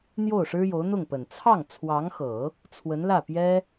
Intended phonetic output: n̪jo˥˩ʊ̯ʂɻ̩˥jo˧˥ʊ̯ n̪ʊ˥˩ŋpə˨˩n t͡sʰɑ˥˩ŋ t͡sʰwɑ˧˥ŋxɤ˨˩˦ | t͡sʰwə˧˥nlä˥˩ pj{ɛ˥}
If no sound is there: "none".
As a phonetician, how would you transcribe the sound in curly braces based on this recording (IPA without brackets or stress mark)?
ɛ˥